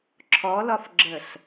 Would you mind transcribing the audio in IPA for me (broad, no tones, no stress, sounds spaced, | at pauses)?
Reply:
ǁʰ ɔ l ɒ f ɡ͡ǁ ə ɬ